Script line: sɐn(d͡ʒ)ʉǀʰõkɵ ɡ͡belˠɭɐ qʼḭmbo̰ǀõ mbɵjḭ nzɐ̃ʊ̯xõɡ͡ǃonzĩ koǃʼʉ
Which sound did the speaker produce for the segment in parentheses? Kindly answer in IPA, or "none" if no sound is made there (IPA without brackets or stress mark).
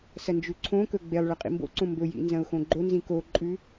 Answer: d͡ʒ